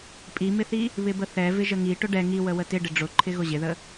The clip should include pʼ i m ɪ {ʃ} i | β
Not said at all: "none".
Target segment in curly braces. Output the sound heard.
θ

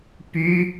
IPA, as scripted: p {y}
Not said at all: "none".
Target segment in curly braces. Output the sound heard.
y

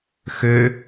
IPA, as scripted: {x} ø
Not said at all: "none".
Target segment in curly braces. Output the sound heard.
x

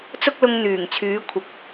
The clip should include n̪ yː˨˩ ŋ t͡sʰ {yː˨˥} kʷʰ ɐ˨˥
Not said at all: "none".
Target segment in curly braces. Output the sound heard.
yː˨˥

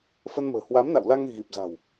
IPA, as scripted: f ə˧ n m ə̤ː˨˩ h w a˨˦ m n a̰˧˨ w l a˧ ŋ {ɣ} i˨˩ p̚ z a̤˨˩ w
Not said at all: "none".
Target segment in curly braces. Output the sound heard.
ɣ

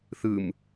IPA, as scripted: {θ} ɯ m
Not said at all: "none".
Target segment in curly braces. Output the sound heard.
θ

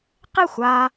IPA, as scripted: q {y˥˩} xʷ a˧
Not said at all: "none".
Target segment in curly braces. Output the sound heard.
e˥˩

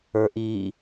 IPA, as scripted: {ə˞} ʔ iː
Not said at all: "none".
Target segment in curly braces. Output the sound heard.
ə˞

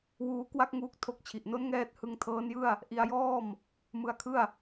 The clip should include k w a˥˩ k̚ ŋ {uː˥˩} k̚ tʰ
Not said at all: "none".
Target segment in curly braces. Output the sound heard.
uː˦˥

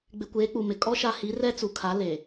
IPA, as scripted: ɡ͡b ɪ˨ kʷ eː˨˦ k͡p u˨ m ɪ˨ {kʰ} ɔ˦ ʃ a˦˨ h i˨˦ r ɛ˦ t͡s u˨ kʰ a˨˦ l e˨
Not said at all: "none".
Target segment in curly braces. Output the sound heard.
kʼ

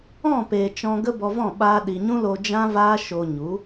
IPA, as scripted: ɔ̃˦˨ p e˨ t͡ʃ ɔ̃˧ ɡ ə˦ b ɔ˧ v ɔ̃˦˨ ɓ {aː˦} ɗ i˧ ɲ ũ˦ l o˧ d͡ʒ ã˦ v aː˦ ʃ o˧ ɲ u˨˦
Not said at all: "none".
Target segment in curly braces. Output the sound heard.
aː˦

